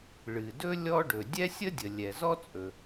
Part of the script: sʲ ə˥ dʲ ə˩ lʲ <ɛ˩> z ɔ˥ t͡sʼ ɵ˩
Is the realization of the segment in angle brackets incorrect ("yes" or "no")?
no